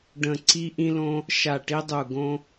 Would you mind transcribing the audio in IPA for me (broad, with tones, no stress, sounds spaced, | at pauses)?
ɖ ə̃˦˨ ǀ i˥ ʔ ĩ˥ l õ˥ | ʃ a˦˨ ʈ i˥ dˤ u˦˨ ɡ õ˥